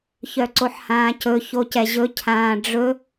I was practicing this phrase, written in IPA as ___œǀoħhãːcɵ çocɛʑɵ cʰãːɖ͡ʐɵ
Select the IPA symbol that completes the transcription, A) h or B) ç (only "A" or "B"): B